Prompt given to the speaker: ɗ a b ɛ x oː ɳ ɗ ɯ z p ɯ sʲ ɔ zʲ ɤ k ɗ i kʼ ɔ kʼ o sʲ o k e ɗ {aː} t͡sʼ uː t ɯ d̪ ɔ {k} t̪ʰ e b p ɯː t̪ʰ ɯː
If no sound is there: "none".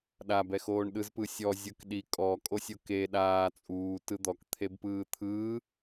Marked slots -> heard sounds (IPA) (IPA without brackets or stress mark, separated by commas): aː, k